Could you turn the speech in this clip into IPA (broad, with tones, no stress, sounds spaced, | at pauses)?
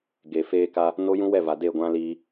ɡ e˨ f eː˦ k a˦ | n o˦ j ũ˦ w ɛ˦˨ v a˨ d e˦˨ ɡʷ ã˦ l iː˦